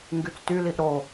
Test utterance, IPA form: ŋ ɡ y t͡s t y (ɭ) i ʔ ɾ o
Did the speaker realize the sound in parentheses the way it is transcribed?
no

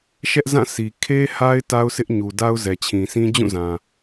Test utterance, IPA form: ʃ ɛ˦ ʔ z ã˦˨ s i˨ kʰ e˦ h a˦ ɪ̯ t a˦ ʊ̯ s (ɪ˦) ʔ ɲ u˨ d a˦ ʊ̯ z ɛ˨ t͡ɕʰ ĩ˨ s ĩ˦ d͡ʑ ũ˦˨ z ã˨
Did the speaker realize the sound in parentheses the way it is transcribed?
yes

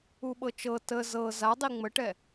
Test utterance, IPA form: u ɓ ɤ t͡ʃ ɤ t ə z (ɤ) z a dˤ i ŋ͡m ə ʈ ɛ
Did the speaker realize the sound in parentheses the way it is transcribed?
yes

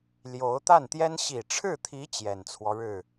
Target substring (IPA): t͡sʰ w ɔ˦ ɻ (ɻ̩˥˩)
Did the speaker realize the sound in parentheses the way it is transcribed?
yes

